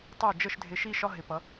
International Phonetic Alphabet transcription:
tˤɪ˥˩ʊ̯ d͡ʒə˥˩ʃdʱɪ˧ ʃi˥ ʃɒ˥ɦɪ˩˥pʌ˩˥

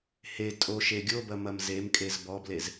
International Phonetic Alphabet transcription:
he tʼo ʃeɡʲobɐ mɐmzemkʼez bɔblez

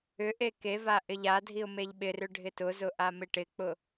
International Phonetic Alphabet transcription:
ʏʔe keva ʔɪʎadʱiʊ̯ meʎɓɪrʏ ɖʱɪtʊzʊ ʔamɪʈɪk͡pʊ

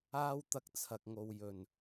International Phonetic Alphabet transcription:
aː˥wt̪ɐ˧k̚t͡sʰɐ˨k̚ŋo˨w jɵ˨˩n

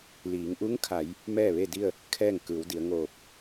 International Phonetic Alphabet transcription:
liː˩˧ŋ ʔu˧˥ŋkʰa˩˧j | mɛː˥˨ʋe˥˨di˥˨ə̯ | kʰɛː˥˨ŋ kɯː˩˧wdi˩˧ə̯ ŋoː˧˩p̚

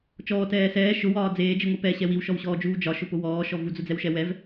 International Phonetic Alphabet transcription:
t͡ʃɔːtɛː sɛː ʃʊwɒː d͡zeːd͡ʒiŋʷi pɛɕɛ wiwʃɔwɕɔːd͡ʒuː d͡ʒɒʃʊpʊ wɔːʃɔ vud͡zʊd͡zɛwʃɛ wɛv

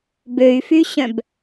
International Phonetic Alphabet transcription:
bøy̯fyɕœ̃b

